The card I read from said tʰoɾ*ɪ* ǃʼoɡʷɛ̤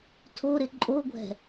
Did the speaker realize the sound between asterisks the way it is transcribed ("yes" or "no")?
yes